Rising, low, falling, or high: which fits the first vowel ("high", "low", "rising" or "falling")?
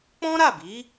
high